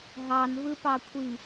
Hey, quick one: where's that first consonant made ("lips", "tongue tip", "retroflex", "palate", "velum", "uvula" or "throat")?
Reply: throat